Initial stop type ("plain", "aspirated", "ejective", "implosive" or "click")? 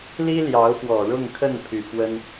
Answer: aspirated